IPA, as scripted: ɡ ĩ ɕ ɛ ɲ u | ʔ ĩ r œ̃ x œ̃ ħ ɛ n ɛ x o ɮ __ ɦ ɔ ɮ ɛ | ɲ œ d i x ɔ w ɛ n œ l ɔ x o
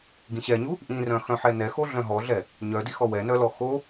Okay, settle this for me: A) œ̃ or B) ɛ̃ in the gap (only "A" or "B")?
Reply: A